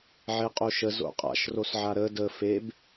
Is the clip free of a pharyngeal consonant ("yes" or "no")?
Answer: no